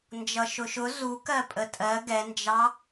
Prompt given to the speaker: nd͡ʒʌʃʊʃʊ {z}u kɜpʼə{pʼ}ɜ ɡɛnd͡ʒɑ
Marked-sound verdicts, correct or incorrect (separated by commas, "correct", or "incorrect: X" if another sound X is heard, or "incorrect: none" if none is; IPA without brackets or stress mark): correct, incorrect: tʼ